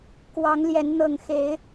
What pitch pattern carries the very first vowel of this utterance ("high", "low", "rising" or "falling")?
rising